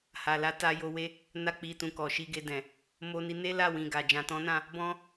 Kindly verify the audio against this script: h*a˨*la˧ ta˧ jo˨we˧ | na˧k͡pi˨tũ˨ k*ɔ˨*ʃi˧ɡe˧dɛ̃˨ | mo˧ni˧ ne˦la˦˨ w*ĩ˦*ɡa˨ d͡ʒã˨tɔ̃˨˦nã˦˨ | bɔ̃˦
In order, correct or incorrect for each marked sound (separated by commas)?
correct, correct, incorrect